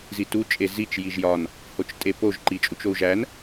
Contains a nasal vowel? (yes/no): no